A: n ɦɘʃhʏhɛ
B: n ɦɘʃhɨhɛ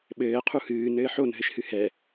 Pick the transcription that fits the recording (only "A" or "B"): B